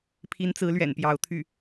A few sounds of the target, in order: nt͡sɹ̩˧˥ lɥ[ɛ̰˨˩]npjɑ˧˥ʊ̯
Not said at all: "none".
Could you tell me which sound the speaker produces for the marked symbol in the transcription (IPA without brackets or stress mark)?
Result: ɛ̰˨˩